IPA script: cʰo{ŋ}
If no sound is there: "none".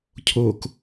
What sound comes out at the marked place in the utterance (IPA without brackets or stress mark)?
k